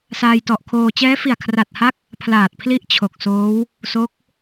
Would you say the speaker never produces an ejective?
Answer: yes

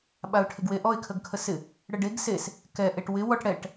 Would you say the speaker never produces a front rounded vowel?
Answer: yes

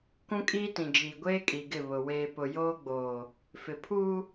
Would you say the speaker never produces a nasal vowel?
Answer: no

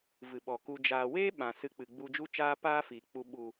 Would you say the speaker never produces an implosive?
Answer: no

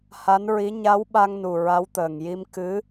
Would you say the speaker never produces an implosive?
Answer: no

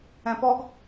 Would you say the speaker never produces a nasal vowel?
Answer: no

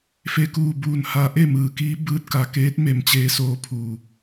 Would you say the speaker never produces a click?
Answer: yes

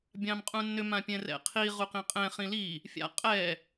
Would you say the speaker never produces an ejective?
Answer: no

